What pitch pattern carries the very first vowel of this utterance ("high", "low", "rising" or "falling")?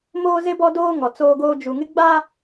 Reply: high